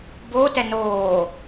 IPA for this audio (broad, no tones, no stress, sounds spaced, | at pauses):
b o t ɛ n oː